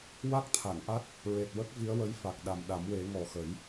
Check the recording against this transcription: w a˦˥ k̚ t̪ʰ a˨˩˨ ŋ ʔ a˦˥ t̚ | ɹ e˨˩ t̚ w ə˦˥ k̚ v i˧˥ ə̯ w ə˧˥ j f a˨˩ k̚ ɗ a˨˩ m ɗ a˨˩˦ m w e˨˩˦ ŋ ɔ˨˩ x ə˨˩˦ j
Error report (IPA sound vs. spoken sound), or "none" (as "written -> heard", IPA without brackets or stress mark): none